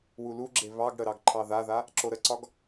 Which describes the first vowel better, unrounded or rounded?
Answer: rounded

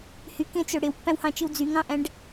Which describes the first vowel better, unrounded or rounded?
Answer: rounded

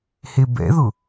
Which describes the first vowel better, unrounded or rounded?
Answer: unrounded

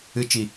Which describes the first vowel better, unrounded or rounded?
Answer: unrounded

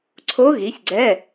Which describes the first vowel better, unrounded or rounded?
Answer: rounded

